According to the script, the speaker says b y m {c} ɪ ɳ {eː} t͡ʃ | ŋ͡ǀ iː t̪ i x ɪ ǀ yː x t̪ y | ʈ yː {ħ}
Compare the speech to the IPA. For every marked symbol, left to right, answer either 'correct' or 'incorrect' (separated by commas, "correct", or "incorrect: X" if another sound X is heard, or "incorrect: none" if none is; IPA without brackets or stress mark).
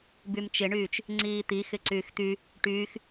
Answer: incorrect: t͡ʃ, incorrect: yː, incorrect: x